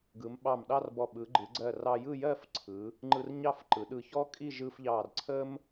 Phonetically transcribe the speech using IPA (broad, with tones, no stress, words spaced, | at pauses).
ɡɯ˩˧mɓɑ˧˩mɗɑ˥˧rbɔ˧˩ ɓɯ˩˧ɡ͡ǃɯ˩˧ɡ͡ǀɜ˧˩rɑ˧ jɯ˥˧jɜ˥˧fǀʰɯ˩˧ | ŋ͡ǃɯ˧rɲɑ˥˧fǃɯ˩˧ ɗɯ˧˩çɔ˥ kʼi˥˧ ʒɯ˧fʎɑ˧˩r ǀʰə˥m